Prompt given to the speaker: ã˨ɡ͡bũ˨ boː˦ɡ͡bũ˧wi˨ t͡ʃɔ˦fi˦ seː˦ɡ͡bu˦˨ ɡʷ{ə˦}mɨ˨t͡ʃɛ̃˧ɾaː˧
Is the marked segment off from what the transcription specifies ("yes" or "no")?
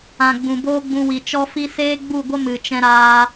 no